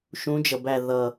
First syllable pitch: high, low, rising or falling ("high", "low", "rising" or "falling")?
rising